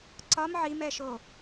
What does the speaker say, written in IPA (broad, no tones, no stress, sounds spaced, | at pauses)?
ǀ ɒ m ʕ i m ɛ ʃ o